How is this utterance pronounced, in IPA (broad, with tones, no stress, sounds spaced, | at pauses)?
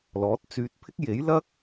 l ɔː˨˥ t̚ t͡s yː˧ t̚ pʰ ɪ˥ k̚ j e˨˥ j l ɐ˥ k̚